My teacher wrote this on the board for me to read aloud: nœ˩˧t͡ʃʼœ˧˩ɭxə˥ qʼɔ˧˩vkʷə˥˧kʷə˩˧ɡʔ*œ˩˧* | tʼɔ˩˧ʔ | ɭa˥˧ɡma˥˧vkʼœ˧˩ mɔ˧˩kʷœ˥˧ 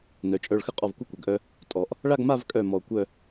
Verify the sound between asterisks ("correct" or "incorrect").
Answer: incorrect